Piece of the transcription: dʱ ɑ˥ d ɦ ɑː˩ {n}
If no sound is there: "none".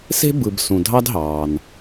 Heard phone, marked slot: n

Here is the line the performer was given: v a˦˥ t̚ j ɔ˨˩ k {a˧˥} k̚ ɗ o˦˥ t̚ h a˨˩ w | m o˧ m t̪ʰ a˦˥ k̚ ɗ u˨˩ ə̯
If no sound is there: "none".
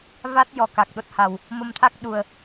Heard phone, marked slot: a˨˩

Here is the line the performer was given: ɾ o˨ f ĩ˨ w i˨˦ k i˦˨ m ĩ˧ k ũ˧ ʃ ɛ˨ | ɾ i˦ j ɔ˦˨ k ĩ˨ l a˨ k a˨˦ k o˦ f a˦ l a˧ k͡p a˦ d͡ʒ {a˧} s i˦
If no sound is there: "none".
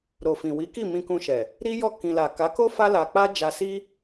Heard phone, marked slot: a˧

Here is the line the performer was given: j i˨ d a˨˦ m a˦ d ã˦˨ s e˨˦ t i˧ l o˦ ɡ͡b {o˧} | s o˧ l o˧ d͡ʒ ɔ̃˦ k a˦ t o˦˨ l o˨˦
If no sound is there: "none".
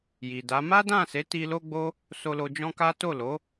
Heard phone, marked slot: o˦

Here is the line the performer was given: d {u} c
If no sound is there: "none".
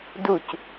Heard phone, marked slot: u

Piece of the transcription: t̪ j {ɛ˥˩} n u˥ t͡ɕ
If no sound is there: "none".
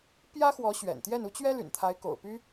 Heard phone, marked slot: ɛ˥˩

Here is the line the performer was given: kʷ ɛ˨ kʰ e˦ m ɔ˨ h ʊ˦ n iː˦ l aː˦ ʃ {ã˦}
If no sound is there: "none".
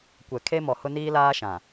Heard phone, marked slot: ã˨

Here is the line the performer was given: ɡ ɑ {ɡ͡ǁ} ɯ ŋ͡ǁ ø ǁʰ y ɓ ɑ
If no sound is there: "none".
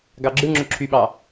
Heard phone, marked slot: ɡ͡ǁ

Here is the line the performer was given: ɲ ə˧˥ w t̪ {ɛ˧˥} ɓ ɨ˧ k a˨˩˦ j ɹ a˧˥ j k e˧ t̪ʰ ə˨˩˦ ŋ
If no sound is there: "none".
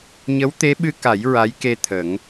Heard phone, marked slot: e˧˥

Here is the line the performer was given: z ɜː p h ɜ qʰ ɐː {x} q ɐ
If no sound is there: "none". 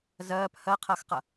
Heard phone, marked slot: x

